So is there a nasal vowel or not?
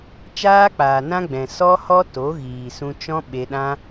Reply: yes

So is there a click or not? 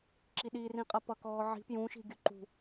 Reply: yes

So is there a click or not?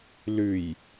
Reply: no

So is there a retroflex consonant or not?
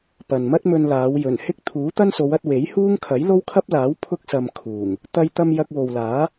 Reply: no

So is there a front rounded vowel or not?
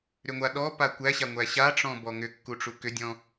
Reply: yes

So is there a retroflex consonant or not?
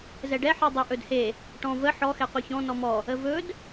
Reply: yes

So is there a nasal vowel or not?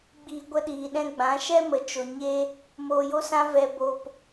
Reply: yes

